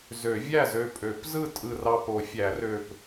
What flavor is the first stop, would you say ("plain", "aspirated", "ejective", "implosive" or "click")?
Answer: ejective